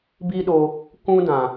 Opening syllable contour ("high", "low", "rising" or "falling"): high